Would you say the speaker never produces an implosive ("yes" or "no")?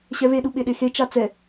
no